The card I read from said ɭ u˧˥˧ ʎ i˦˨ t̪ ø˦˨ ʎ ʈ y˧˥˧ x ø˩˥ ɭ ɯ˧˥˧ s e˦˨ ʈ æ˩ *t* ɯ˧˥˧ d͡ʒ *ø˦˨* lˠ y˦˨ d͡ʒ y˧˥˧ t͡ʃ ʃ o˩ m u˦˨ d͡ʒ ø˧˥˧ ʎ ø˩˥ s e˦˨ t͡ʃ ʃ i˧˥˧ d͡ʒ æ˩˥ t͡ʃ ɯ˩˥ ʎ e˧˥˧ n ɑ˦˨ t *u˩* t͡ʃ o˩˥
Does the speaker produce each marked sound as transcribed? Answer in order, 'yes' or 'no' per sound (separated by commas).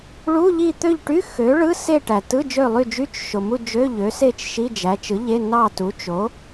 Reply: yes, yes, no